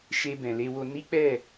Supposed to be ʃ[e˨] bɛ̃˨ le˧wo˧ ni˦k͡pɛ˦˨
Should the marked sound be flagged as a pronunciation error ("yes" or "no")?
yes